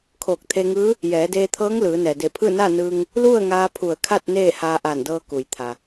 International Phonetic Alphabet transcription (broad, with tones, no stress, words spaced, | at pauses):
kʰoː˧˩k̚t̪ʰe˧ŋɯː˧˥ | jɛː˩˧deː˧t̪ʰɤː˧˥ŋ lɯː˩˧ nɛː˩de˧˩pʰɯː˥˨ na˥˨nɯː˧ŋ | lu˥˨ə̯ŋaː˧ pʰu˧˩ə̯kʰa˥˨t̚ neː˥˨haː˧ʔaː˧˩ndɤː˧ ku˩jt̪ʰa˩